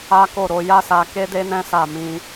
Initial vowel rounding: unrounded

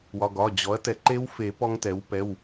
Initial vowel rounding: rounded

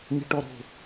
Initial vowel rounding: unrounded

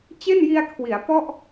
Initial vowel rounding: unrounded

